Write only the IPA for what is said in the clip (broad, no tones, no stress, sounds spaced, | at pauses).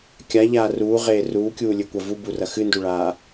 kʲ a ʎ aː r uː ʁ eː r uː kʲ uː lʲ ɨ kʷ ɐ v u b u r ɐ x ɨ n d u ɭ aː